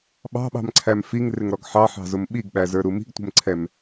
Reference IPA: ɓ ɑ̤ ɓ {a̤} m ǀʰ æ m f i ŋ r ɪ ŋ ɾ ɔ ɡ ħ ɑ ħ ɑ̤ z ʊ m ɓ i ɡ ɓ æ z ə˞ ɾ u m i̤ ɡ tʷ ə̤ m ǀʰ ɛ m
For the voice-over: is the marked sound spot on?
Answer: no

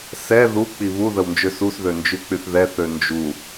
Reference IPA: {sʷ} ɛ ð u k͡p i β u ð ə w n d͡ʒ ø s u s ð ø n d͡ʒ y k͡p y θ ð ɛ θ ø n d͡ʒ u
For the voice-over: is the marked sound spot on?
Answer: no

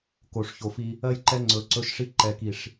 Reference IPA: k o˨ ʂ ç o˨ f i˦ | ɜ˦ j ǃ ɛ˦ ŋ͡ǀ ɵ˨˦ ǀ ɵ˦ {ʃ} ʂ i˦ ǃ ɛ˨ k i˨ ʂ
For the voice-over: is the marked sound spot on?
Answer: yes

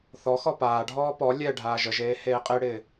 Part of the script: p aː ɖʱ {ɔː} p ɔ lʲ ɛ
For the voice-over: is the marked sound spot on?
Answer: yes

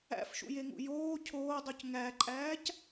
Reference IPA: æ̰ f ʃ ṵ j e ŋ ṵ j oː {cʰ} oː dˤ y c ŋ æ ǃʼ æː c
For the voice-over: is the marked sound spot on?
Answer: yes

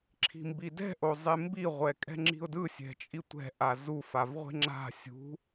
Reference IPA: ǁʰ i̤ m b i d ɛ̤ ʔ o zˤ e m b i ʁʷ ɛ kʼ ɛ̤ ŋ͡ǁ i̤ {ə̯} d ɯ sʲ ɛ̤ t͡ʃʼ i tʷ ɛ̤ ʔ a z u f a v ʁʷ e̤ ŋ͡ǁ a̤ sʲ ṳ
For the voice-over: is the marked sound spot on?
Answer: no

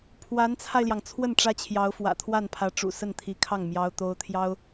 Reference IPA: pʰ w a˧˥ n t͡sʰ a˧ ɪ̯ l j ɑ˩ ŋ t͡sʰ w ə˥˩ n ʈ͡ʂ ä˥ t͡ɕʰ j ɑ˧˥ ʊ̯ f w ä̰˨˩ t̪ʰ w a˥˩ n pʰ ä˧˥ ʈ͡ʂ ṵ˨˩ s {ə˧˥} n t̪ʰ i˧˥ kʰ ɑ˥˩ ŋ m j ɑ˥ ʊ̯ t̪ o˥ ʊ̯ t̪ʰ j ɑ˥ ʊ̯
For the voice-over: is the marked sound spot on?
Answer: no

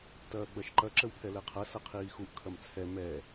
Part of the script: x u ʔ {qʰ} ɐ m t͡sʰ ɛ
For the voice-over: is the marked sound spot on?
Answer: no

